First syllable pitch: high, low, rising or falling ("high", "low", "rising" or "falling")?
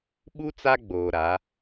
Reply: high